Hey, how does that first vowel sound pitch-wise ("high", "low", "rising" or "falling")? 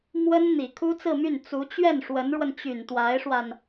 high